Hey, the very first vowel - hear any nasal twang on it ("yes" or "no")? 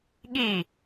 no